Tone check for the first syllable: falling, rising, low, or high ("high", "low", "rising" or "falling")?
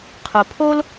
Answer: low